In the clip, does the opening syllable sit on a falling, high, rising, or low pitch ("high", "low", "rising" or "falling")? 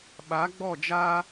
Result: rising